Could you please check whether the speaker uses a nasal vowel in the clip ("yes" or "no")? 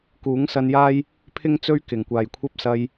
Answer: no